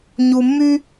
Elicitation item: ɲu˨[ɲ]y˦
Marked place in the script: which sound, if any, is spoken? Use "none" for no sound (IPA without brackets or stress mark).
mː